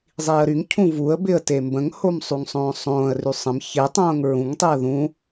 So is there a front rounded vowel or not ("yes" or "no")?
yes